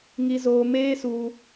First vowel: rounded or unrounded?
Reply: unrounded